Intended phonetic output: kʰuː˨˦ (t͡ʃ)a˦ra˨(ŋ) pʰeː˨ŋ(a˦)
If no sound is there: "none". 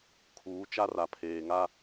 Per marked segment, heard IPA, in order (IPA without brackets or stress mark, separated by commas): t͡ʃ, none, a˦